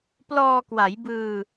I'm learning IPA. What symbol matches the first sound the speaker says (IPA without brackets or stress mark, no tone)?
p